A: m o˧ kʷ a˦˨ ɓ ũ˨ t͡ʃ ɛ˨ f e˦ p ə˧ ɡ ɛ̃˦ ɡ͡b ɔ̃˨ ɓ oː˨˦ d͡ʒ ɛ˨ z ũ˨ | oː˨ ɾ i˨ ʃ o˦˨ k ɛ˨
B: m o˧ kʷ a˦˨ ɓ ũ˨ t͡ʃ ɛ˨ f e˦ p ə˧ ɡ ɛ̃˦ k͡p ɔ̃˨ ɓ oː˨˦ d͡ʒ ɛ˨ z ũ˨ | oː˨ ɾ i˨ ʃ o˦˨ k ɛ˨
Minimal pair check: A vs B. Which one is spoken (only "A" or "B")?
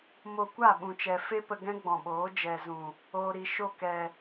A